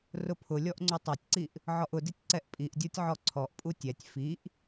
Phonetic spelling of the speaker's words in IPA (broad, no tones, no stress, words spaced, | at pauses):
rʊpʰʊlʲɔʔ ŋ͡ǀutˤatʲǀiʔ | ʕɔʔʊditʲ ǀɛʔpʼiʔdʲotʲ ʕɔǀʰɔʔpʼu tʲɛtʲ fiʔ